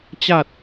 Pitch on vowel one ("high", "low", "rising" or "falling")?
low